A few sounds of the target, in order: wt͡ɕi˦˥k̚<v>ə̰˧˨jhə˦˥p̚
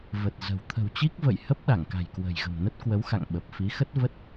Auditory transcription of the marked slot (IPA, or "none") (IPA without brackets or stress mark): v